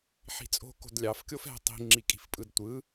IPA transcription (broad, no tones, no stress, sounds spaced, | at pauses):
ħ i̤ t͡sʼ o̤ k o̤ d lʲ ɑ f kʲ o f ɛ̤ tˤ i̤ ŋ͡ǁ i kʼ i̤ f pʼ ɯ d tʷ ɯ